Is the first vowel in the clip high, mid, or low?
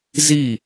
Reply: high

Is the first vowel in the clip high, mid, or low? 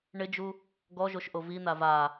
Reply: high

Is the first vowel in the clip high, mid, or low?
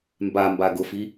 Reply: low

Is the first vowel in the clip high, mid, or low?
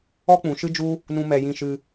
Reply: mid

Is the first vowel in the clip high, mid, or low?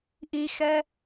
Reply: high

